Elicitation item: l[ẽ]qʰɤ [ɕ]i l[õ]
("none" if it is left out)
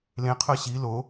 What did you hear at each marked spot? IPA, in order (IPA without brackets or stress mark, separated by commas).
ẽ, ɕ, o